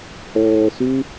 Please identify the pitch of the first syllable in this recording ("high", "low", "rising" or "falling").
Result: low